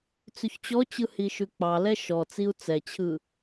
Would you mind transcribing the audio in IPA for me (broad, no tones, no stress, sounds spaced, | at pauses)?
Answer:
t͡s ʉ ç t͡ɕ ɔ t͡ɕ ɯ h i ʃ ʉ k͡p ɑ l ɛ ʃ ɔ t͡s i u̯ t͡s ɛ t͡ɕʰ ɯ